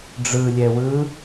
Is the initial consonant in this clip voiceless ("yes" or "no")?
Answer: no